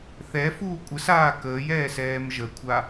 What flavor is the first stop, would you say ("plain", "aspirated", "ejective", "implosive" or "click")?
ejective